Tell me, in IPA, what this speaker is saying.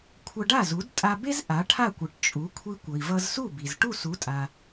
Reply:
kʷʰ ʌ˧ ɖ a˥˩ z u˩˥ d tʼ a˧ b e˥ z ʔ a˩˥ ʈʰ a˥˩ kʷ ɯ˩ ʈ t͡ʃʼ u˩˥ kʷʰ i˧ kʷ ʌ˩ i̯ v ʌ˧ z s u˥˩ b i˩ z ʈ u˥˩ s u˩˥ tʼ a˩

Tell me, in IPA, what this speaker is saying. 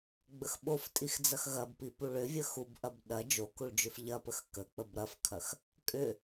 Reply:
ɡ͡b ə x ɓ o f tʼ i x d͡z ɐ x ɣ ɐ b p i p u ɭ ʏ vʲ ə x u b ʔ ɐ b ɗ ɐ d͡ʒ o k u ɭ d͡ʒ ʏ f ʎ ɐ p ə x k ə k͡p ə b ɾ ɐ f kʰ ɐ x | kʼ ʏ

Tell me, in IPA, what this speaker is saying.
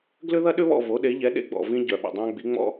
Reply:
ɡ l ʏ˥ ð ɐ˥ ɗ ʏ˥ β ɔ̰˦˨ v o˩˥ ɗ e˩˥ ʎ ɛ˩˥ ɗ ḛ˥ ɡ͡b ɔ̰˩ v ĩ˥ ɟ œ˩ ɓ ə̰˩ dˤ ã˥ ɡ͡b i˩˥ ŋ͡m ɔ̰˥

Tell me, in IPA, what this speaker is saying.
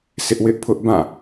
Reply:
sʰ ɪ˦ ʔ w ɪ˦ ʔ pʰ ʊ˦ ʔ b ã˦˨

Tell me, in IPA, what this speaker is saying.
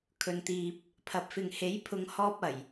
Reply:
kʰ ɵ˨ n t̪ iː˨ p̚ | pʰ ɐ˨ p̚ f ɪ˨ ŋ h e˨˥ j pʰ ʊ˨˧ ŋ h ɔː˧ p̚ ɐ˨˩ j

